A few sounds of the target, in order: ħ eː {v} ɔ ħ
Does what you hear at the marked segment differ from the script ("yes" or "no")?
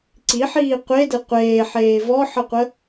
no